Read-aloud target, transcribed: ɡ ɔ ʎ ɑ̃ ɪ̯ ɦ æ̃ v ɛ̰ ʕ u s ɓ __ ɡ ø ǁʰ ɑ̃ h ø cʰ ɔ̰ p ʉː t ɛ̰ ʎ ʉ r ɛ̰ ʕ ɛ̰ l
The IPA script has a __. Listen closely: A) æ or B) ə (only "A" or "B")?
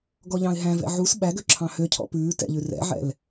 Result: A